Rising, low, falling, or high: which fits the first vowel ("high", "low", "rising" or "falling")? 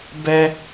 high